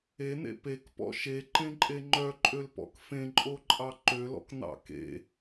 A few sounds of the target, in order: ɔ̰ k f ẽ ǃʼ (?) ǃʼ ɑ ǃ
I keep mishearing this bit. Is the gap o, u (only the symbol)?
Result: o